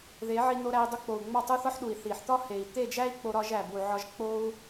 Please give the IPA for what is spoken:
ð e˨˦ ʕ i˧ n o˧ ɾ æ˧ i̯ dˤ u˧ k͡p o˨ u̯ ŋ͡m ɒ˦˨ tˤ u˦ θ ɒ˦ ħ ɗ u˨ i̯ θ i˨ ħ t̪ ɒ˦ h e˨ i̯ t̪ e˦˨ d͡ʒ æ˦ i̯ k͡p o˧ ɾ ɒ˧ ʒ æ˨ b u˨ ʕ ɒ˧ ʒ k͡p o˦ u̯

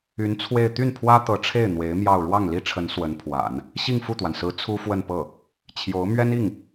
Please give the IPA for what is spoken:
y˧˥ n t͡sʰ w e˥˧ ɪ̯ t̪ y˥˩ n pʰ w ä˥ t̪ ɤ˧˥ ʈ͡ʂʰ e˥˩ ɪ̯ n̪ w e˧˥ ɪ̯ m j ɑ˥˧ ʊ̯ ɻ w ɑ˥˩ ŋ l i˥ ʈ͡ʂʰ ə˧˥ n s w ə˧˥ n pʰ w a̰˨˩˦ n | ɕ i˥˧ ŋ f u˥˩ t̪ w a˩ n s ɹ̩˧˥ t͡sʰ u˥ f w ə˥˧ n p ɤ˥˩ | t͡ɕʰ j o˧˥ ʊ̯ m ɥ ɛ˥ n i˥˩ ŋ

